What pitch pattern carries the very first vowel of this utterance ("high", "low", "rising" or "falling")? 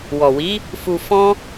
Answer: low